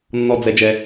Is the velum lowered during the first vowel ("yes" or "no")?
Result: no